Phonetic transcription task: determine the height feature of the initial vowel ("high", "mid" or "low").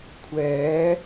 mid